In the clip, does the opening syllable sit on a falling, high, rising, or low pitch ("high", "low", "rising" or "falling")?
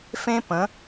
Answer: high